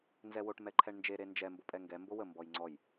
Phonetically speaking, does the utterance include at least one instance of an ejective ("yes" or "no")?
yes